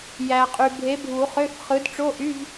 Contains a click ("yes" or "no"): no